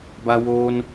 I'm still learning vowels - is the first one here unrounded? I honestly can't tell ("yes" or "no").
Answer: yes